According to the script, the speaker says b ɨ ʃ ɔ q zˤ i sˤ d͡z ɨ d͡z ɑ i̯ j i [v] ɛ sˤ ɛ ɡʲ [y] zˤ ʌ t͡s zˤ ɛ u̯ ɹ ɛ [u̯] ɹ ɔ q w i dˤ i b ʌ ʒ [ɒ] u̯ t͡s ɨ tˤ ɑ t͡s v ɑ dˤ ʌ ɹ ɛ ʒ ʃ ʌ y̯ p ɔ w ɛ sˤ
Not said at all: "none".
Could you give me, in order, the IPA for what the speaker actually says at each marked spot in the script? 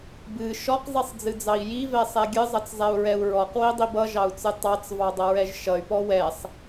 v, ɨ, u̯, ɑ

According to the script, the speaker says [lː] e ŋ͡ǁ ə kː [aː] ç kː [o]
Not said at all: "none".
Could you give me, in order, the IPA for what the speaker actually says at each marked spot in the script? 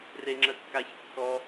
r, a, ɔ

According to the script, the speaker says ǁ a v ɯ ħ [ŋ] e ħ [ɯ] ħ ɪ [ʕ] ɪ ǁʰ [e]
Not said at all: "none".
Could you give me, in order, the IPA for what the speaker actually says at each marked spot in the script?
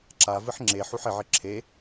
ŋ͡ǁ, u, ʕ, e

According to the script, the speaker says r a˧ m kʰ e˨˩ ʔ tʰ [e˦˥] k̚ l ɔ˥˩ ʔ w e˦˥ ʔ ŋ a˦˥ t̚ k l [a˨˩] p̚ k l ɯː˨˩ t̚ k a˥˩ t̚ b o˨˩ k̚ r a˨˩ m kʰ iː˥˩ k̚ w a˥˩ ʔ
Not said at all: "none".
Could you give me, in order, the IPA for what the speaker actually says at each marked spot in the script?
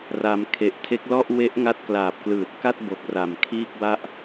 e˦˥, aː˨˩

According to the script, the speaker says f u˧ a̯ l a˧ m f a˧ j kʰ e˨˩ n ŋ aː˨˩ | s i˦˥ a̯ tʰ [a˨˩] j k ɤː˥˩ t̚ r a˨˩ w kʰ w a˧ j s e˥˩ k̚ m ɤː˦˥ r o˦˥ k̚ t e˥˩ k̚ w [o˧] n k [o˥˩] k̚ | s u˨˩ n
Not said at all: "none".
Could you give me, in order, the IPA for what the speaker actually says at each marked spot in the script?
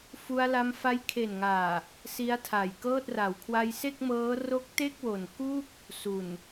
a˨˩, o˨˩, u˥˩

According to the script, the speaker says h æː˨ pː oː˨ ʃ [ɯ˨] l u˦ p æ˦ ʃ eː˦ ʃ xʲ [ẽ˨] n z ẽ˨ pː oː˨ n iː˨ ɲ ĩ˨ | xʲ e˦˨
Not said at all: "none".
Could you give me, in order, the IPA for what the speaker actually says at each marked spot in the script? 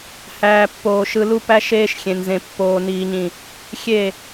ɯ˨, ẽ˨

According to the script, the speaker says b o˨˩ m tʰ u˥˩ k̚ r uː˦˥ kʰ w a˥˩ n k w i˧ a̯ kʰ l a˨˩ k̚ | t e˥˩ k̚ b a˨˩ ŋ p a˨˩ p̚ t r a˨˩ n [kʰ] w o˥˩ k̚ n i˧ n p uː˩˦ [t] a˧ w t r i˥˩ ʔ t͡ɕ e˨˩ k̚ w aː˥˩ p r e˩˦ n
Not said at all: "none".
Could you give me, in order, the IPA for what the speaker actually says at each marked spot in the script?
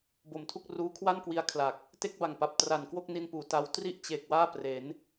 k, t

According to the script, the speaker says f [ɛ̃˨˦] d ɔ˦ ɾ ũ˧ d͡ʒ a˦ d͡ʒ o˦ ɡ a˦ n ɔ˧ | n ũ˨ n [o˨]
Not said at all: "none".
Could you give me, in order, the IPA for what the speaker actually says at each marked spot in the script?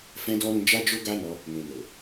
ɛ̃˦, o˨

